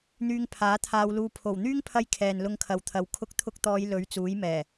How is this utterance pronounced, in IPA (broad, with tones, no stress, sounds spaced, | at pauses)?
n̪ yː˧ ŋ pʰ aː˨˥ t̪ʰ aː˧ w l uː˧ pʰ o˨˩ w n̪ yː˥ ŋ pʰ ɐ˧ j kʰ ɛː˨ n l ʊ˧ ŋ kʰ ɐ˨ w t̪ʰ ɐ˨ w kʰ ʊ˧ k̚ t̪ʰ ʊ˧ k̚ t̪ ɔː˨˧ j l ɵ˨˥ ɥ t͡s uː˨˥ j m ɛː˨˩